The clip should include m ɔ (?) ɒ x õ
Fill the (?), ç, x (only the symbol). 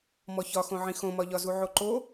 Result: ç